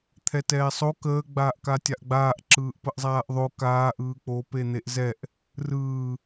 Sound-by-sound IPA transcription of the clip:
t̪ʰ ɛ t ɛː sˤ o k əː ɡ͡b aː ʔ k a tʲ a ʔ ɡ͡b aː ʔ ǁ ɯː ʔ p ə ʔ zˤ aː ʔ ðˤ o k aː ʔ ɯː k͡p o p e n̪ e ʔ z ɛ ʔ | r ɯː

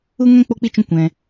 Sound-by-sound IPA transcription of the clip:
u˦ ŋ ɛ̃˦ k͡p o˦ k͡p i˦ t͡ʃ ũ˦ kʷ ɛ̃˧

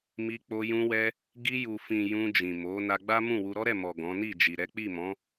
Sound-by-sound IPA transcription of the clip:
m i˧ k͡p o˧ j ũ˧ w ɛ˧ | ɡ i˧ j u˨ f ĩ˨ j ũ˧ d͡ʒ ĩ˨ m o˨˦ n a˧ ɡ͡b a˦ m ũ˦˨ w u˧ ɾ ɔ˦ ɾ ɛ˦˨ m ɔ˨ ɡ ɔ̃˨˦ n i˦˨ d͡ʒ i˨ ɾ ɛ˨˦ k͡p i˦˨ m ɔ̃˨˦

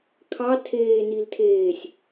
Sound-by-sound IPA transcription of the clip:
kʰ ɑ tʰ eː n i l tʰ eː sʲ

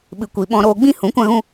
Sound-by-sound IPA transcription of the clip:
ɓ ɨ˨ kʷ i˨ ɓ ɔ̃˧ ɾ oː˧ ɡ͡b ĩ˦ h ũ˨˦ kʷ ã˦ ɣ ũ˦

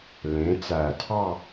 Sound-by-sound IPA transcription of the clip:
l ẽ˩˧ t͡s æ˨˩ tʰ ɑ˥˧

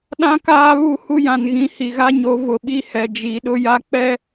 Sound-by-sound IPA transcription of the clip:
ɗ ã˦ k aː˦ β u˦˨ h u˦ j ã˨ n ɣ ĩ˨ h i˨ ɣ a˦ ɲ o˨˦ v ʊ˨ ɓ i˦ h ɛ˨ d͡ʒ i˨ ɗ ʊ˦ j a˦ k͡p ɛ˦

